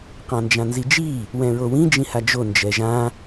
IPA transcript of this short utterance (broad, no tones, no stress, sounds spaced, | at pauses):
q ã n d͡ʒ ã n z i d͡ʒ i | w ɛ̃ ɹ o w ĩ d͡ʒ ĩ h a d͡ʒ o n d͡ʒ ɛ ʒ ã